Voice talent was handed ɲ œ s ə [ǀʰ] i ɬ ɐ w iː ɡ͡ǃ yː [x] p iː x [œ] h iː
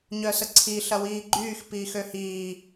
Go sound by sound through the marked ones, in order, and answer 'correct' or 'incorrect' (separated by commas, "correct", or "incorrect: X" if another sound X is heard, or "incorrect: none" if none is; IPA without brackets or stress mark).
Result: correct, correct, incorrect: ø